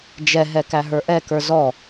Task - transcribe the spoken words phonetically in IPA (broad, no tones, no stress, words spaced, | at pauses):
d͡ʒɛɦɛ kæɦə˞ʔɛkə˞z ɔ